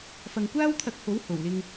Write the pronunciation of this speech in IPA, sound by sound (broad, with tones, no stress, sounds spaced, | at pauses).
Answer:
f ɐ˨ ŋ kʷ aː˥ w t̪ʰ ɐ˧ k̚ h o˨˥ w h o˨˩ w l ɪ˧ ŋ